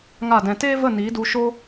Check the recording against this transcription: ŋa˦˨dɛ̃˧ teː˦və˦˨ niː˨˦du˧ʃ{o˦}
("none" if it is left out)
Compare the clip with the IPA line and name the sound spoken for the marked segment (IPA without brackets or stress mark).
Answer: o˦